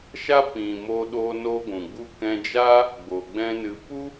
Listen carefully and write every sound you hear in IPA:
ʃ a˦ p ĩ˨ m o˧ ɗ o˧ n o˦ ɡʷ ũ˨ ɡ͡b u˦ k ɛ̃˧ d͡ʒ aː˦ | ɡ͡b o˨ ɡ͡b ɛ̃˦ n ɨ˧ p u˦

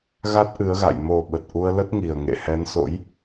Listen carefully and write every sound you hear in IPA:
ɣ a˦˥ t̚ ʔ ɨ˨˦ ə̯ ɣ a̰˧˨ j m o˨˩ ɓ ə˨˩ t̚ ʔ u˧ ə̯ l ə˦˥ t̚ ŋ i˨˩ ə̯ ŋ ḛ˧˨ h ɛ˨˦ n s o̰˧˥ j

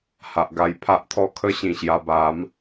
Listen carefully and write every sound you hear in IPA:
h a˨ ʔ ɡ a˧ j pʰ a˦ ʔ t̪ʰ ɔ˦ kʰ ə˦ ɕ ĩ˨˩ ɕ j a˧ b a˨˦ m

